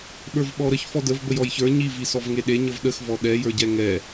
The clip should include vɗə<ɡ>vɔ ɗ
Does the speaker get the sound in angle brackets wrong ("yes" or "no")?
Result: yes